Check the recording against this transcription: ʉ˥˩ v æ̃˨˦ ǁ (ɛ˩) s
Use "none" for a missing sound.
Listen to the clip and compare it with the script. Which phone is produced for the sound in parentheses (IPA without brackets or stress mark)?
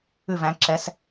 ɛ˨˦